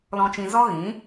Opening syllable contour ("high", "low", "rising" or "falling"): low